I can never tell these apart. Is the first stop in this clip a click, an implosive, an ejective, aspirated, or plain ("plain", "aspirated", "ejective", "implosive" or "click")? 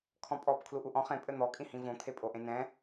aspirated